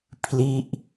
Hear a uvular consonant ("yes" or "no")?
no